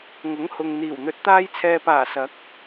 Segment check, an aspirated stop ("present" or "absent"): present